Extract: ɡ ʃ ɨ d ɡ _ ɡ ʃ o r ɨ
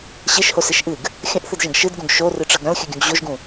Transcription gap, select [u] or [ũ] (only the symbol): ũ